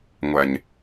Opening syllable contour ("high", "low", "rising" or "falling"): low